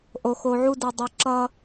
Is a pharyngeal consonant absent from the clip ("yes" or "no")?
no